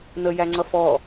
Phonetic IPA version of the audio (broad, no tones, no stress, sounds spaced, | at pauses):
n̪ ə j æ ŋ͡ǀ ʌ f ɔ